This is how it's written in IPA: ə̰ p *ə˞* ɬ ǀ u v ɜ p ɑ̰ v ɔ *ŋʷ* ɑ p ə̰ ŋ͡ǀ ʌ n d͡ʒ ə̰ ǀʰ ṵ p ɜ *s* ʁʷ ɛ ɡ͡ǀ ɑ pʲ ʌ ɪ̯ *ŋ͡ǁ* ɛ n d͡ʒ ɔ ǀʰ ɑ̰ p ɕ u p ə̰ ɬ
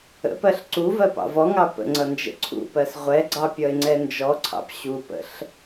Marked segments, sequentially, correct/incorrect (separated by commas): incorrect, incorrect, correct, incorrect